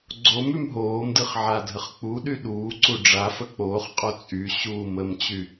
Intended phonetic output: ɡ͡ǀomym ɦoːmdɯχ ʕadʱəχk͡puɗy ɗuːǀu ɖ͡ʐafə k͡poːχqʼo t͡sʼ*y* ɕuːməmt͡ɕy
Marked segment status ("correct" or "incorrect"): correct